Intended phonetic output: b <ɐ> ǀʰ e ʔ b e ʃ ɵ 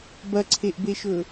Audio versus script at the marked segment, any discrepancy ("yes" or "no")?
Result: no